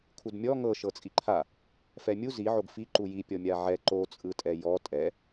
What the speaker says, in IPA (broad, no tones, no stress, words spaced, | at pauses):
kʰudmʲɔ ŋɤ ʃɤt͡sʼiǃʰa | fɛmʲu ziʕoɡ fi ǃuji pʲɔmʲaʕɛ ǃot͡sʼɯtʼɛ jɔ tʼɛ